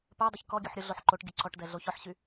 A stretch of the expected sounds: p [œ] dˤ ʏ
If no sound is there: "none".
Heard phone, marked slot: œ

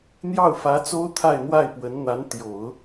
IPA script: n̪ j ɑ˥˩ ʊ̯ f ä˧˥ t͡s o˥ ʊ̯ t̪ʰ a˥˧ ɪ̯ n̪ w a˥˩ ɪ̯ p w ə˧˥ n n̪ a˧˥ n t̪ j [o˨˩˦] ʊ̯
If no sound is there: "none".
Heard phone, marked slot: o˨˩˦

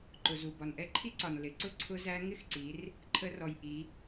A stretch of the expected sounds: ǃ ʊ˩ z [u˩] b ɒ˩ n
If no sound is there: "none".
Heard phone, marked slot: u˩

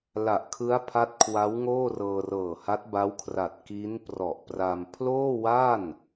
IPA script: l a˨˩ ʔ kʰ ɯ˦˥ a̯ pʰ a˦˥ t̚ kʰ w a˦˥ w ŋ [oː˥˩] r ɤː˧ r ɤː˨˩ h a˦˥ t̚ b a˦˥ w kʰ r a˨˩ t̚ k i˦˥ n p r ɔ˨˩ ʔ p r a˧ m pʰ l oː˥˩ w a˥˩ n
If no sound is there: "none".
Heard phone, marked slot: oː˥˩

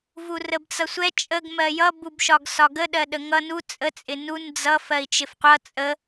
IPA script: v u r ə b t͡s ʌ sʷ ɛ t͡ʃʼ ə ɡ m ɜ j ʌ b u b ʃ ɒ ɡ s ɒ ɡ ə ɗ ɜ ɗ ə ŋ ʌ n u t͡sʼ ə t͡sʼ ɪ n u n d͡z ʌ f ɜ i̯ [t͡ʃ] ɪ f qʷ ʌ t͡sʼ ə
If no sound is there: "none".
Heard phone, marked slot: t͡ʃ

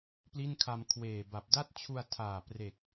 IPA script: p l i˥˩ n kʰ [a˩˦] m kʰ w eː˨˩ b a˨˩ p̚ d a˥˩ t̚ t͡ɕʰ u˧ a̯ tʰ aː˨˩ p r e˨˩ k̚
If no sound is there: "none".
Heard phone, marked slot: a˧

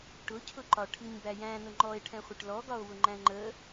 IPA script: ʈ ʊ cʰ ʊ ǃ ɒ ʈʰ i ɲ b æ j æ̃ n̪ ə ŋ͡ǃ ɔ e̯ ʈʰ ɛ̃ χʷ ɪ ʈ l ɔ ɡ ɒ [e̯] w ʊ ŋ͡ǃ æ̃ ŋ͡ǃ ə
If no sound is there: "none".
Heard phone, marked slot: o̯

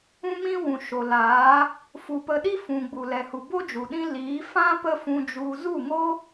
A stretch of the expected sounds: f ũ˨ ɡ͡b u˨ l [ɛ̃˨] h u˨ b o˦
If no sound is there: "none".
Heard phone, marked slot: ɛ˨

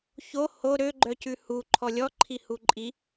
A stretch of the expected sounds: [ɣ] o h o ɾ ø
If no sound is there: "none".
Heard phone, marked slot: ç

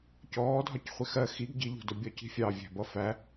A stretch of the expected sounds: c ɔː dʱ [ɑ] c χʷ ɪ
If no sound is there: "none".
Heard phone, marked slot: ɒ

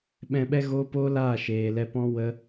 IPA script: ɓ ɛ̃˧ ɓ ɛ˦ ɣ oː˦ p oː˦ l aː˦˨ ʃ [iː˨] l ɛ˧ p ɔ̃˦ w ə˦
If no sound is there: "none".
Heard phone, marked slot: eː˨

